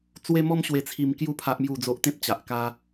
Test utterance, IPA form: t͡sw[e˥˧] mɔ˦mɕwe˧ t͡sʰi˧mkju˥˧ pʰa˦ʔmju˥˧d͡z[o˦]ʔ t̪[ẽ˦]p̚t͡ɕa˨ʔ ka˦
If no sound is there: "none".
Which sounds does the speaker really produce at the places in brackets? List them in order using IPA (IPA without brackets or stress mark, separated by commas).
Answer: e˦, o˦, ẽ˦